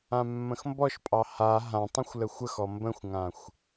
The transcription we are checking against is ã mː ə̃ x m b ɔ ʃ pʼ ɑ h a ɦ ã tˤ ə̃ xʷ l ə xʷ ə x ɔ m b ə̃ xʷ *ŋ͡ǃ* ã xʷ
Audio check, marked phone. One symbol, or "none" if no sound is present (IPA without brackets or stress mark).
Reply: ŋ